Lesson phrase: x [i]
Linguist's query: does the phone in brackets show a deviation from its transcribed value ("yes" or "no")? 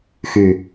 yes